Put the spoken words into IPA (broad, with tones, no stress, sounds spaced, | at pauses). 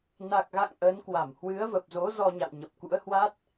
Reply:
n a˨˩ k̚ ɣ a̰˧˨ ŋ ʔ əː˨˦ n k w a˧˩ m h w ɨ˨˦ ə̯ v ə˨˩ p̚ z o˨˦ z ɔ˧ ɲ a̰˧˨ w ɲ ə˨˩ p̚ k ṵ˧˥ ə̯ h w a˦˥ t̚